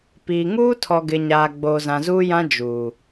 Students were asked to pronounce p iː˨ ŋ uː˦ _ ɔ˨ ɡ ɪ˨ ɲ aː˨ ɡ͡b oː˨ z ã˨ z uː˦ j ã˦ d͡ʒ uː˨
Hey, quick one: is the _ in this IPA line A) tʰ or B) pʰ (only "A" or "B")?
A